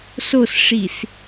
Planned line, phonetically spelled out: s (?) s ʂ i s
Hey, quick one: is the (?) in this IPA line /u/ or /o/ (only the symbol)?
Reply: o